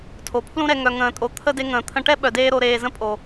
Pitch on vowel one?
low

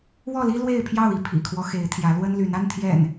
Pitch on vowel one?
falling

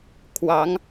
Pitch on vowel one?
rising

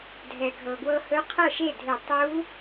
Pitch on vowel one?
low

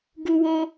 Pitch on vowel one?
high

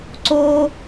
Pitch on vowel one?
high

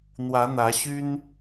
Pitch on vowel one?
rising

